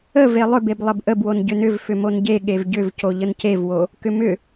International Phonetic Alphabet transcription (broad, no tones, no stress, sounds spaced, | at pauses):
ə v e lˠ ʏ b e b lˠ ə b ʔ ə b w o n ɟ ʏ n ʏ v f ʏ m o n ɟ e ɠ e v ɟ ʏ v c o ʎ ə n c e v w o | k ʏ m ʏ